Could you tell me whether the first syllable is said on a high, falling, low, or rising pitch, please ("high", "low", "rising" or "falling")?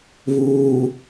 low